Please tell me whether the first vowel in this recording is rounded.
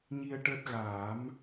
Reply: no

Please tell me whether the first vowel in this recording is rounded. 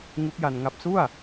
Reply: yes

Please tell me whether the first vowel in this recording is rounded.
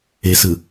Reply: no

